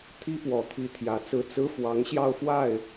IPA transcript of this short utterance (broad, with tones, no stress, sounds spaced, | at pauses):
t̪ʰ i˥ p w ɔ˨˩ t̪ʰ i˧˥ t̪ʰ j ä˧˥ t͡s ɹ̩˥˩ t͡s ɹ̩˥ f w ɑ˧˥ ŋ ɕ j ɑ˥˧ ʊ̯ f w a˥˩ ɪ̯